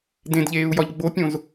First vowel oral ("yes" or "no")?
no